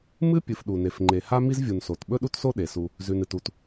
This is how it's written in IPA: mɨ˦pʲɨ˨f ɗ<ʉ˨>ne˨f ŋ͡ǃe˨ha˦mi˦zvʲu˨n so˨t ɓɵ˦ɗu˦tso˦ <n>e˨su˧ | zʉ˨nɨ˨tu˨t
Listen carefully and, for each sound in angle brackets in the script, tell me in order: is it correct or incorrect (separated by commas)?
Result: incorrect, incorrect